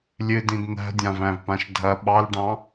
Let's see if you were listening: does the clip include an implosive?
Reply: yes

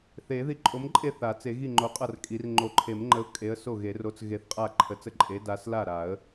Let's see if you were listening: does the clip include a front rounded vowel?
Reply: no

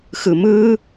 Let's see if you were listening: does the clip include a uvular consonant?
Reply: no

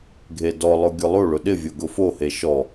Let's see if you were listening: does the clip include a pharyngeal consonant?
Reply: no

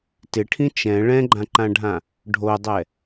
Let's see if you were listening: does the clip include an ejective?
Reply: no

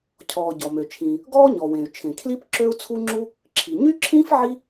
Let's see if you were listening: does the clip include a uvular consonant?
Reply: no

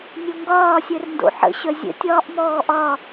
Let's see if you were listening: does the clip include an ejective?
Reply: no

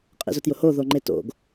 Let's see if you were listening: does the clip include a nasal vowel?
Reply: no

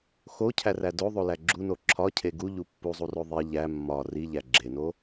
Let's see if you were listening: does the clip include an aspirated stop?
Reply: yes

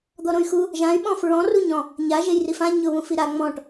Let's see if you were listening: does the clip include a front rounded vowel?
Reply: yes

